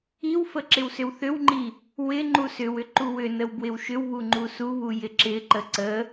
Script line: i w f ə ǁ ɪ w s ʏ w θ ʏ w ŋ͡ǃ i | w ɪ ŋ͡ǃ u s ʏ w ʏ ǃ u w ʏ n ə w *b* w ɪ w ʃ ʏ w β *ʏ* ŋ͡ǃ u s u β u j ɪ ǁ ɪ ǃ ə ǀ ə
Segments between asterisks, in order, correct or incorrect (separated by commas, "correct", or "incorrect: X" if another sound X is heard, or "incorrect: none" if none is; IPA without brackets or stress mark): correct, incorrect: u